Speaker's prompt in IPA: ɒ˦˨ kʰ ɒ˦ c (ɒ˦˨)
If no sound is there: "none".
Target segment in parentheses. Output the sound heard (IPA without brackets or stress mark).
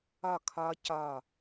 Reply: ɒ˦˨